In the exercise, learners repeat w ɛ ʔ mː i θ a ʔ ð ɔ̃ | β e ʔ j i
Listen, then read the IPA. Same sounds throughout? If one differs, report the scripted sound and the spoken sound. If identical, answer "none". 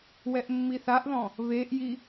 none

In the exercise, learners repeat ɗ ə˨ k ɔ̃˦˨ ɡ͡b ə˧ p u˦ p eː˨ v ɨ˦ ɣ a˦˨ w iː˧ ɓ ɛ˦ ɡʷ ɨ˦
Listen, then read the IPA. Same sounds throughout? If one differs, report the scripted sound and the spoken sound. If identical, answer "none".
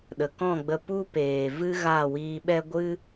none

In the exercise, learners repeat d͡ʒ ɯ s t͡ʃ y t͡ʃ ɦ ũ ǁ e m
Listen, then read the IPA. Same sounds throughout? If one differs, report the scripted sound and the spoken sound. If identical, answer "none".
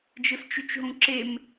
none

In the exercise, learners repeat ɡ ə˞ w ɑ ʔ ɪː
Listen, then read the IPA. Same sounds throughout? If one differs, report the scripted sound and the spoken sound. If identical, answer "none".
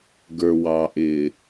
none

